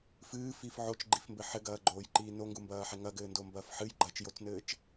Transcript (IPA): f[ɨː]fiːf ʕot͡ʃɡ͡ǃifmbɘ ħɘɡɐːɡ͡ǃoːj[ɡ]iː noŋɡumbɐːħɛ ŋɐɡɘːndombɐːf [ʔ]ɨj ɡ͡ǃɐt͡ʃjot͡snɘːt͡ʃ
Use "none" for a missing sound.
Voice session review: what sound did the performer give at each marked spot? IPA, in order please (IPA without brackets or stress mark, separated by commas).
ɨː, ǃ, ħ